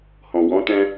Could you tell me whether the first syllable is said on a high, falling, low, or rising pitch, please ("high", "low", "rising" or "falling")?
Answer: low